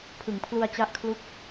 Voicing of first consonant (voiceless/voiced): voiceless